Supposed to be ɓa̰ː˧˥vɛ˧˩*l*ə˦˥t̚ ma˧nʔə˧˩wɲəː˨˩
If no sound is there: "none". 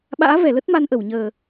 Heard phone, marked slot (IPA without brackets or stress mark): l